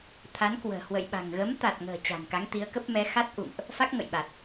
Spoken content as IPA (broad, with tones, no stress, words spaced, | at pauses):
t̪ʰa˨˦nkwə̤ː˨˩ hwə̰˧˨jɓa̤˨˩ŋ ɣə˨˦mt̪a˨˩t̚ŋə̤ː˨˩ t͡ɕa̤˨˩nka˨˦ŋt̪i˨˦ə̯kə˦˥p̚ mɛ˨˦xa˦˥t̚ʔṵ˧˨ŋʔ | fa˦˥k̚ ŋə̰˧˨jɓa˨˩t̚